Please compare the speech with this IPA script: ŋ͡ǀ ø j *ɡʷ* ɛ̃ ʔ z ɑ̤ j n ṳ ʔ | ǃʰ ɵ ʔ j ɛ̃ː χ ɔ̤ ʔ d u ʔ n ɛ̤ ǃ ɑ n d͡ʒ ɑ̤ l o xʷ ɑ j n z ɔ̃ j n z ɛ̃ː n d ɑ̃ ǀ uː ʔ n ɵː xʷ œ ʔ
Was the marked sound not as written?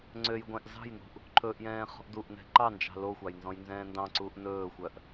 no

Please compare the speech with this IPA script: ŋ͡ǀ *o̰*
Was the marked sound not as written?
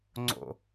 no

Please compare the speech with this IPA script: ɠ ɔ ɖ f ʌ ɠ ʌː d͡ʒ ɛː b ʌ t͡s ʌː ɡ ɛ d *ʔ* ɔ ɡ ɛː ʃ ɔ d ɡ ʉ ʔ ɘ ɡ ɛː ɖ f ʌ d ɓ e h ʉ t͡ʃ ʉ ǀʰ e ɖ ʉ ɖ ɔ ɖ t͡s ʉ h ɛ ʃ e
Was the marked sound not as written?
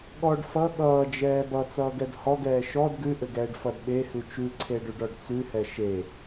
yes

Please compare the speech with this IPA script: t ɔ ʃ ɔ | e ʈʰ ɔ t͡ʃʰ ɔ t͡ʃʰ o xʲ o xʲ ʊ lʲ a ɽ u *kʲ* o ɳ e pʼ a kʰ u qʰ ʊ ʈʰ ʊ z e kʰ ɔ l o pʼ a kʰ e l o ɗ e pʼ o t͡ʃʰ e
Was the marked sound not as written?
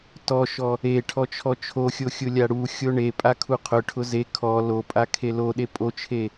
yes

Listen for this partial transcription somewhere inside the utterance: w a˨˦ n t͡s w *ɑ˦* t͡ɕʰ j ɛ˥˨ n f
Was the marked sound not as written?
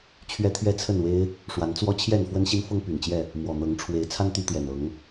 yes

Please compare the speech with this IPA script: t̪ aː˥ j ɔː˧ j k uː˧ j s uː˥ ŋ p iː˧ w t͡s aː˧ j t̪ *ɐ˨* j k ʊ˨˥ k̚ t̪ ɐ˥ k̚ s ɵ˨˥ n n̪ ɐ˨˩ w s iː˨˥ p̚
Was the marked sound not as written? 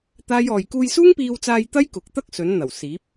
yes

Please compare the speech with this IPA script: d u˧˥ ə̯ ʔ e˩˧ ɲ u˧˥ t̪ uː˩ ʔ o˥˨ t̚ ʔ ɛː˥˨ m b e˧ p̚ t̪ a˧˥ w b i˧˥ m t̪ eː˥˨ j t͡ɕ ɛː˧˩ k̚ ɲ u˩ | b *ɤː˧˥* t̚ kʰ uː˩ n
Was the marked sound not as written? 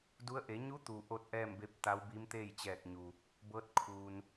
no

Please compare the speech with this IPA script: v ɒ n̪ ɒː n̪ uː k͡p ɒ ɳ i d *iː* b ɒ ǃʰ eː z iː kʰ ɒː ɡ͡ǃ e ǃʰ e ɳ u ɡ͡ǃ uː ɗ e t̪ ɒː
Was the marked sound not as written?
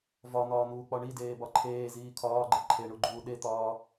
yes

